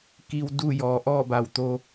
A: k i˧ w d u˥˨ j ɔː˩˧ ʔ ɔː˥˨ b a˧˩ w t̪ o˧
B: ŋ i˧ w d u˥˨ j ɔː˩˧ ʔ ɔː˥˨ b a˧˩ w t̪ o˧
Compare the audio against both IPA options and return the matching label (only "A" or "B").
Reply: A